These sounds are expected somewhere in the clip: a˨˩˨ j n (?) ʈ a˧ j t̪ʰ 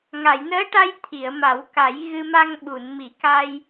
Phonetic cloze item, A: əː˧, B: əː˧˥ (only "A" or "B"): B